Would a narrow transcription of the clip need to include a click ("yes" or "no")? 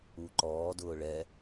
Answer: yes